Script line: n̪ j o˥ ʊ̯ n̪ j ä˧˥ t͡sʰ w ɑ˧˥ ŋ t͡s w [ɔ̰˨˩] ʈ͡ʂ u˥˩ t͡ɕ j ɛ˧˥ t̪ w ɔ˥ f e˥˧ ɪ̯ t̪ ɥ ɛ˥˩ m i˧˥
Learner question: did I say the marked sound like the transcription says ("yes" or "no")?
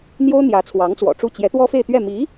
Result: yes